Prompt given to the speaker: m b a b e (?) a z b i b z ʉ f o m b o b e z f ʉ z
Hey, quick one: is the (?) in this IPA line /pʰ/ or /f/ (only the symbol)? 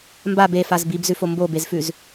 f